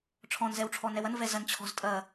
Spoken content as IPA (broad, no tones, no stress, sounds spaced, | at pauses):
ʈ͡ʂʰ ɔ̃ n z ɛ w ʈ͡ʂʰ ɔ n ɛ w ɐ n v ɛ z ɐ n t͡ɕʰ ɔ̤ z tʼ ɐ